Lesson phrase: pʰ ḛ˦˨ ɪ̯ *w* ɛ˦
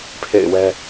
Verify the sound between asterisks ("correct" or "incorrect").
correct